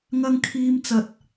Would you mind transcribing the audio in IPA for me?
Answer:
ŋ ɐ˧ ŋ kʰ iː˧ m t͡s ɐ˨ t̚

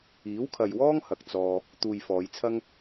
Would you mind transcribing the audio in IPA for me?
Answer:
iː˨˥ w kʰ ɐ˨ j w ɔː˥ ŋ h ɐ˨ k̚ t͡s ɔː˧ | t̪ uː˨ j f ɔː˨˧ j t͡sʰ ɐ˥ ŋ

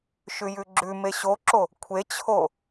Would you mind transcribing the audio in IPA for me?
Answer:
ʃ ʉ j ʉ ɡ͡ǁ ʉ m e ɕ o ǁ o | kʷʰ e t͡ɕʰ o

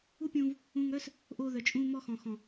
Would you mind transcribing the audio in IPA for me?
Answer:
u˦ pʲ ũː˧ v | ũː˧ ŋ œː˦ s | ʔ oː˧ ð œ˨ t͡ʃʼ ũː˧ m ɔ˧ x ɔ̃˨ x ɔ̃˨

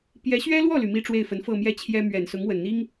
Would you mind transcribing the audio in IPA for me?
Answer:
p j ɛ˧˥ ɕ ɥ ɛ˥ l w ɔ˥˩ l y˩ m i˥˧ ʈ͡ʂ w e˥˩ ɪ̯ f ə˧˥ n f ɤ˥˧ m j ɛ˥˩ t͡ɕʰ j ɛ˥ m ɥ ɛ˨˩ n s ʊ˧˥ ŋ w ə˨˩ n n̪ i˥ ŋ

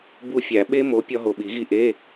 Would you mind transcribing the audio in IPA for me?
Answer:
b u˦˨ fʲ æ˨˩˦ ɓ e˦˥ m o˨˦ pʲ ɒ˦˥ ɦ o˨˩ ɓ i˨˩˦ ɣ i˦˨ ʔ e˧˥˧

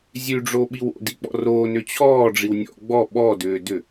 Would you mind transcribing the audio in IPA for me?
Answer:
zʲ ʉ ɖ͡ʐ o ɓ i w o̰ d i k͡p ɔ̰ r oː n ʏ t͡ɕʰ ɔː ɖ͡ʐ i w nʲ ɔ̰ ɡ͡b ɔ ɓ ɔ d ʏː d ʏ

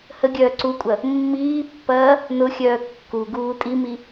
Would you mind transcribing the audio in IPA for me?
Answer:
h ə ɡʲ œː ǀ u kʷʼ ɐ | mː iː pː ɐː | n ʊ xʲ œː kː u ɡ uː tʼ i m i

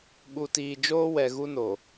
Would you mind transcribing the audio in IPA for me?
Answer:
ɓ u˨ t iː˨ d͡ʒ oː˦ w ɛ˨ ɣ u˦ n o˨

